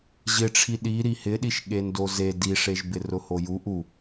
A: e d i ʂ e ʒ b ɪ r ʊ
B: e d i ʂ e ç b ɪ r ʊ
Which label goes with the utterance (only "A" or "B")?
A